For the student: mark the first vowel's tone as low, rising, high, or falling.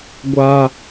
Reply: high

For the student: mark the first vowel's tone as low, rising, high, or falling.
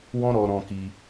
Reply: high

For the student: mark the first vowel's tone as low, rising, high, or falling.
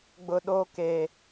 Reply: low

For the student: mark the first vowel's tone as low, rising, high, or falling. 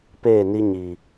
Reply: falling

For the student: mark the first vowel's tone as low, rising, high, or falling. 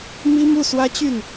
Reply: high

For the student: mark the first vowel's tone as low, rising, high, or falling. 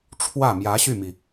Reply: falling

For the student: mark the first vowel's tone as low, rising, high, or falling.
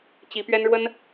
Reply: rising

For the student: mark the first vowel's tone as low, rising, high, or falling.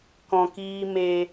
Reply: low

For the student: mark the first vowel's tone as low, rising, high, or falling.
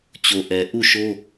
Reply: low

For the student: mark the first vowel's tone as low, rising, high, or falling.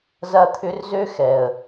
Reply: high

